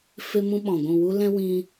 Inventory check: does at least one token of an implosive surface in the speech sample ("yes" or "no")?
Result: yes